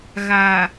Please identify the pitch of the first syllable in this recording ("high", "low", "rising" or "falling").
low